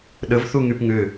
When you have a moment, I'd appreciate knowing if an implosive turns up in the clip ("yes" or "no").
yes